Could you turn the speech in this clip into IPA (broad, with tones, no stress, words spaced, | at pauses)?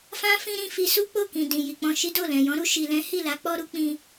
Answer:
fã˦ fĩ˦ɾĩ˧ fi˧su˦k͡po˦˨kĩ˨ dĩ˨ji˨k͡pɔ̃˧ʃi˦ do˦˨lɛ̃˨jɔ̃˨˦ɾu˧ ʃi˨lɛ̃˨˦hi˦˨la˨˦ k͡pɔ˦ɾu˦ k͡pĩ˦